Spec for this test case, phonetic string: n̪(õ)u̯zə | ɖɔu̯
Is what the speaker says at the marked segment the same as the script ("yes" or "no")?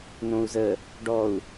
yes